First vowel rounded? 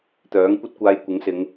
yes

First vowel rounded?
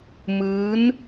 no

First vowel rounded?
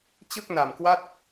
no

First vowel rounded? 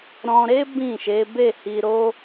yes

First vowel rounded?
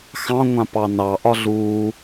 no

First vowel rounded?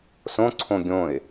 yes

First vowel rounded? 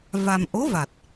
no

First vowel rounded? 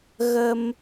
no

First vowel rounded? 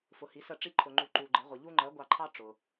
yes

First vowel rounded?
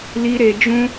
no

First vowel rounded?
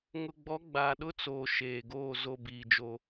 yes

